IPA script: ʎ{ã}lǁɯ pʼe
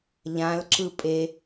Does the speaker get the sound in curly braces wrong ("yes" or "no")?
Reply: no